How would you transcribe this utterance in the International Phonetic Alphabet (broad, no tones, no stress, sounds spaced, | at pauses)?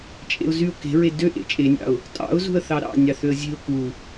t͡ʃʼ ḛ ʊ̯ z y ʊ̯ k e̤ ɹ e d ø ʔ ḛ t͡ʃʼ e nʲ ɑ̰ ʊ̯ | tʼ ɑ̰ ʊ̯ z ṳ ə̯ θ ɑ ɾ ɑ̰ nʲ ɑ θ ø ə̯ zʲ e̤ ʊ̯ k u